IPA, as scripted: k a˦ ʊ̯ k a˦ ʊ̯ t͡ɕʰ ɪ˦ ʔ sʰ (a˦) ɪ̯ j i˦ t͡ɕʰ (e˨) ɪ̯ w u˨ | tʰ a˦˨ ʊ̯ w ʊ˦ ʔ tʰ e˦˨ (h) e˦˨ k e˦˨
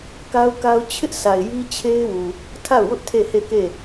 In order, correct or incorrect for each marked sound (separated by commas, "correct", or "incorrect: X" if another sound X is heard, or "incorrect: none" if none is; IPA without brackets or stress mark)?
incorrect: a˨, incorrect: e˦, correct